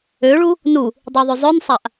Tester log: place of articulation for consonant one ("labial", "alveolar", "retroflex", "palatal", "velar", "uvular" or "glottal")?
retroflex